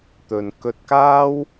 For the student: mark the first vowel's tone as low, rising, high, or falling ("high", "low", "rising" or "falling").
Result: low